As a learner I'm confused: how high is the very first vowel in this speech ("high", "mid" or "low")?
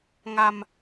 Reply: low